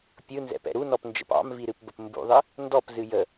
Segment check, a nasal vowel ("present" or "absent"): absent